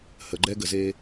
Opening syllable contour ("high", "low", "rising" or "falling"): low